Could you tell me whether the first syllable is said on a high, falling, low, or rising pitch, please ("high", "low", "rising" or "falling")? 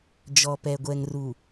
low